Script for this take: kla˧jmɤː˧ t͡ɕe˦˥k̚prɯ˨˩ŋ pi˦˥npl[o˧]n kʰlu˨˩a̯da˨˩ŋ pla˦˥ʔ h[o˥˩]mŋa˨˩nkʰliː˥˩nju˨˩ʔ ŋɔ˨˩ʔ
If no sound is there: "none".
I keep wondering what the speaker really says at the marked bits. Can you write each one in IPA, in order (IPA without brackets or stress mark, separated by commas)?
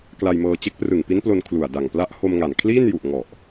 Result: o˧, o˧